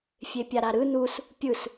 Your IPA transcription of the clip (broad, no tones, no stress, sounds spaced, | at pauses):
fʲ e pʲ a ɾ a ɾ ɯ n u s | pʲ ɯ s